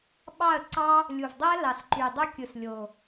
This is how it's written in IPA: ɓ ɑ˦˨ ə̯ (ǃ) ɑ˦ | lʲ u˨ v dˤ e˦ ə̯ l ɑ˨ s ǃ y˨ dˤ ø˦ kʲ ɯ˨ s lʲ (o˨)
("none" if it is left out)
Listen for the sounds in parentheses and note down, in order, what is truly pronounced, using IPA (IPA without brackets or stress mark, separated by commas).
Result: ǀ, o˨